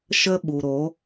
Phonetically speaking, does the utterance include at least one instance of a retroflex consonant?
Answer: no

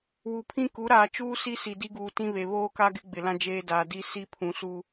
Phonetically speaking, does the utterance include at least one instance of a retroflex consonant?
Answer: no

